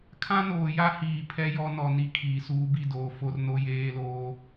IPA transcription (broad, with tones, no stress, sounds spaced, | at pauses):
kʰ ã˦ n oː˨ j a˦ h iː˨ pʰ ɛ˦ j ɔ˦ n ɔ˨ n i˦ kʰ iː˨ s uː˦ b i˦ d oː˨ f o˦ r n o˦ j eː˦ l oː˦